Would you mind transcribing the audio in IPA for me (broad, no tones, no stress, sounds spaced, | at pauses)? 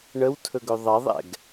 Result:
ɳ ə w tʰ ɵ ɡ ɵ ðˤ ɐ ðˤ ɛ̰ ɡ